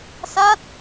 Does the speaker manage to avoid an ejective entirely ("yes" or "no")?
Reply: yes